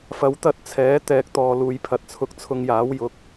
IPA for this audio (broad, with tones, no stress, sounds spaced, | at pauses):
f ɐ˨˥ w t̪ ɐ˨˥ t̚ t͡sʰ ɛː˨˥ t̪ ɛː˨˥ k̚ t̪ ɔː˨ l uː˨ j pʰ ɐ˨ t̚ t͡sʰ ʊ˨˥ k̚ t͡sʰ ʊ˧ ŋ j aː˨˥ w j ʊ˨˥ k̚